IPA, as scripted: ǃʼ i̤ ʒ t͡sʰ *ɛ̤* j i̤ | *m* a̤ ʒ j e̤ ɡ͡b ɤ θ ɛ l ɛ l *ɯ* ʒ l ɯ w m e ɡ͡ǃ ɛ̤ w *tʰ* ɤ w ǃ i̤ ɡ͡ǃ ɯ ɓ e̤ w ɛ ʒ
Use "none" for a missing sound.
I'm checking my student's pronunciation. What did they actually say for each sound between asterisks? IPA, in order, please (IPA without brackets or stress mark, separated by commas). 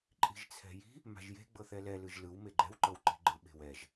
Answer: ɛ̤, m, ɯ, ǃ